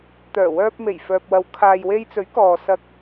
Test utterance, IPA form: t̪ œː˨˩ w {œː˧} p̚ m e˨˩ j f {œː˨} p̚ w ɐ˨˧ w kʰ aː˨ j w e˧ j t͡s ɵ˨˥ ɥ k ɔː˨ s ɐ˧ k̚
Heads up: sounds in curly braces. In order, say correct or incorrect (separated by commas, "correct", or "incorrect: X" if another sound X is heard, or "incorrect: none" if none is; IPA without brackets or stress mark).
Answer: correct, correct